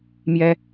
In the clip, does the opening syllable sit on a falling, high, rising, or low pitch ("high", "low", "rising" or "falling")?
high